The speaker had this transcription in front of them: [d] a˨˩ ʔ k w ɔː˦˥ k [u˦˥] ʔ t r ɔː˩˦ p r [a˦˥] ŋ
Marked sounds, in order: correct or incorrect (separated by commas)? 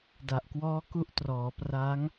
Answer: correct, correct, correct